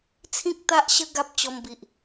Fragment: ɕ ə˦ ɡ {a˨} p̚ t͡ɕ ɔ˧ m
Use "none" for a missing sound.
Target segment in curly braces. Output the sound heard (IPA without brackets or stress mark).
a˦